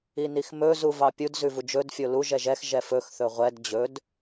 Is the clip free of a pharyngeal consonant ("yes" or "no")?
yes